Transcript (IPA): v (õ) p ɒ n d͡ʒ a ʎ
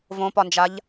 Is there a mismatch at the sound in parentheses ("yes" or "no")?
no